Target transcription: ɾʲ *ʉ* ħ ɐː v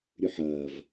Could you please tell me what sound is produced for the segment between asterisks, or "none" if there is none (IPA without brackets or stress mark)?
ʉ